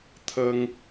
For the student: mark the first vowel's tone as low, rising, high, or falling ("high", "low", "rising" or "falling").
high